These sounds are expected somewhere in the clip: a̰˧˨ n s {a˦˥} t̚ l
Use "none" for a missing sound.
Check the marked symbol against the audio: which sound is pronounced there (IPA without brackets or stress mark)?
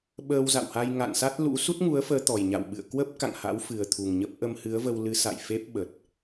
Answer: a˦˥